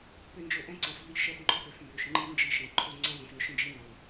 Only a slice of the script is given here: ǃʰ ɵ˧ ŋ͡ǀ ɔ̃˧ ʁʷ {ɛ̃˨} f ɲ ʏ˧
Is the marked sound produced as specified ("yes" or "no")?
yes